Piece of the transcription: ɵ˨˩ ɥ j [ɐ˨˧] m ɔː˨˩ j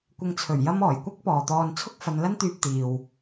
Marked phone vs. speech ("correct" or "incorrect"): incorrect